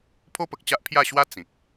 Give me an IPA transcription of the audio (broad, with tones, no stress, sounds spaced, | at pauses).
pʰ o˦ p ə˨ k̚ t͡ɕ a˦ ʔ pʰ j a˥˧ ɕ w a˦ t͡s ĩ˨ k̚